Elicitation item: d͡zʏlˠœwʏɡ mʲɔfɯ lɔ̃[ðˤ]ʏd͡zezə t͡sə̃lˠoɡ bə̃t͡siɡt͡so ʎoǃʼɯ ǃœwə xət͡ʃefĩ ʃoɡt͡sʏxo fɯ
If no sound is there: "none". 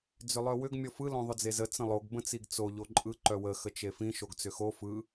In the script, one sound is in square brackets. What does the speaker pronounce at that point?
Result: ðˤ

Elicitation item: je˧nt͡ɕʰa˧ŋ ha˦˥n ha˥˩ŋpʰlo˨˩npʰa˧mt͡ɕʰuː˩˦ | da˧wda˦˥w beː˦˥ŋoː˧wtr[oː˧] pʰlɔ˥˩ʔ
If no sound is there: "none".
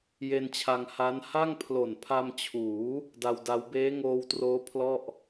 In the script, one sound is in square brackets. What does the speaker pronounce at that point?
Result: oː˦˥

